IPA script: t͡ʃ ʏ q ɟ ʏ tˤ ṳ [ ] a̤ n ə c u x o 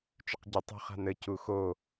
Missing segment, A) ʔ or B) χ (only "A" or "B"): B